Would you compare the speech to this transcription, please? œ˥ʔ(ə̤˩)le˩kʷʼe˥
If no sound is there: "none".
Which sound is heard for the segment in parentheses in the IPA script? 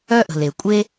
ə̤˩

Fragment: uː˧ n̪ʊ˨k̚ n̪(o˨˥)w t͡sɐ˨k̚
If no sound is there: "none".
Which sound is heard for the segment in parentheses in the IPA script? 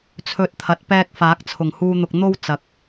o˥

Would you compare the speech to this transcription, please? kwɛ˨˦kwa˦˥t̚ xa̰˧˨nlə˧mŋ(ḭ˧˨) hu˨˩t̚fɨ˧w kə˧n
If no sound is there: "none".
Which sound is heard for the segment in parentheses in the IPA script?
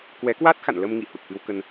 ḭ˧˨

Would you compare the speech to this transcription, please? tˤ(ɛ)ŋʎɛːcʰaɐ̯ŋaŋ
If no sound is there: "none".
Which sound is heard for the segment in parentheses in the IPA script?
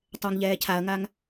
ɛ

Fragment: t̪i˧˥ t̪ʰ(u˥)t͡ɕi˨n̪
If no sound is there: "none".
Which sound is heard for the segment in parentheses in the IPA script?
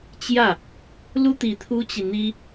u˥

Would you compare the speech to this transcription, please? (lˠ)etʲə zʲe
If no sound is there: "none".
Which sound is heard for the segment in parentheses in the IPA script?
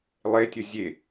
lˠ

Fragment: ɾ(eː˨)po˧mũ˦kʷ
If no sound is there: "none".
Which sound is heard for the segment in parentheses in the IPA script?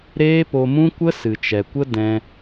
eː˦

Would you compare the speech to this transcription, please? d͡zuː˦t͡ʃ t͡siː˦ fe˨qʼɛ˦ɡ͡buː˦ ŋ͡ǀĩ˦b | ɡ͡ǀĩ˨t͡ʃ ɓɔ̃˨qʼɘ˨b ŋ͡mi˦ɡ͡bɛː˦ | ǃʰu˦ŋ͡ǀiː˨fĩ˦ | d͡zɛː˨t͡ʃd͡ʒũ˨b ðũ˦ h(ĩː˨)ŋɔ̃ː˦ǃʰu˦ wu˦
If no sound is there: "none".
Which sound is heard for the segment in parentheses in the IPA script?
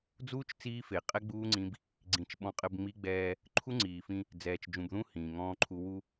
ĩː˨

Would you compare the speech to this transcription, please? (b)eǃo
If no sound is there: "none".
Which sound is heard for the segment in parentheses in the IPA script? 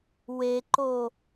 w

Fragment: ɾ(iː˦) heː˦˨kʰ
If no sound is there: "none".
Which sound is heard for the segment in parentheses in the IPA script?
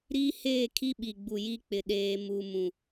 iː˦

